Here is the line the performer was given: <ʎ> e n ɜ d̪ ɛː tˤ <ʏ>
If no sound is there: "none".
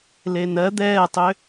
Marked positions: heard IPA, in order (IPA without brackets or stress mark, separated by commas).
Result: l, ʏ